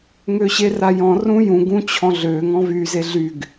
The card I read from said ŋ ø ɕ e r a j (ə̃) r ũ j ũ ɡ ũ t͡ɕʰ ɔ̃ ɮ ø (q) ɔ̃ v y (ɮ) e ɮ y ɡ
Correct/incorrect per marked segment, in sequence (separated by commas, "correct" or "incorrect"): incorrect, incorrect, incorrect